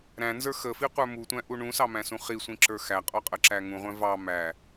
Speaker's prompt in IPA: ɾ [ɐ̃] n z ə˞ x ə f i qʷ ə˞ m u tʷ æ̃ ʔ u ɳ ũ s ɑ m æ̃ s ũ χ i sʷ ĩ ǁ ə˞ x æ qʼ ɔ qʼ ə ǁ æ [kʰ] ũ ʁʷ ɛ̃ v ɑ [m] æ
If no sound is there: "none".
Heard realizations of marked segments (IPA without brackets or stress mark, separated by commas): æ̃, ŋ, m